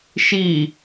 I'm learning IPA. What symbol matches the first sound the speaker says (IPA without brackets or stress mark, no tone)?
ʃ